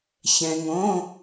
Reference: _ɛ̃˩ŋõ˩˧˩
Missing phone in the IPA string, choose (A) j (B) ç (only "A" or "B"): B